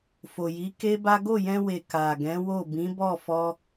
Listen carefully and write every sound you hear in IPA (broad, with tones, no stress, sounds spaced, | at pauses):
f o˨ j i˨˦ k e˦ b a˦ ɡ o˦˨ j ɛ̃˧ w e˨ k a˨ ɡ ɛ̃˨˦ w o˦˨ b ĩ˨˦ b ɔ˦˨ f ɔ˧